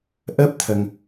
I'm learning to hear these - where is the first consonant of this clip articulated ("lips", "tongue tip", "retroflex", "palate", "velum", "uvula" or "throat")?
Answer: throat